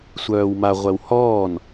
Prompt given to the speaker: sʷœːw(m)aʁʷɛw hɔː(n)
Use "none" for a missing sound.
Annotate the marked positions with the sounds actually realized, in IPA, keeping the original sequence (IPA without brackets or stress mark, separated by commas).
m, n